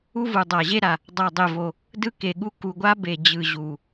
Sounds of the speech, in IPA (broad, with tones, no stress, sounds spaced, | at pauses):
u˦ v u˨˩ dˤ a˨˩ ʑ e˦ ɾ a˨˩ | dˤ a˨˩ dˤ e˨˩ v o˨˩ | d ɯ˦ k e˨˩ ɠ u˦ k u˨˩ ɡʷ a˦ b e˨˩ d͡ʑ ɯ˨˩ ʑ u˨˩